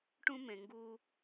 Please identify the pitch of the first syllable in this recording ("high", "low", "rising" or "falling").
high